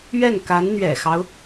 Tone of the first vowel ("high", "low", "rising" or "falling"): falling